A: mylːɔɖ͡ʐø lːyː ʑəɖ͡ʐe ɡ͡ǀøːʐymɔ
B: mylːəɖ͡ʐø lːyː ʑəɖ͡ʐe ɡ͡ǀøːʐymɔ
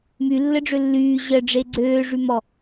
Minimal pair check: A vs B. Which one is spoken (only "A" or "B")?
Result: B